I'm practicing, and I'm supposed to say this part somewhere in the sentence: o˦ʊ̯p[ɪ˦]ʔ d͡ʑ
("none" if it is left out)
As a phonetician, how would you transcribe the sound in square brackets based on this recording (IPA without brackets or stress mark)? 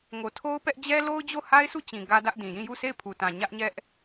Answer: ɛ˦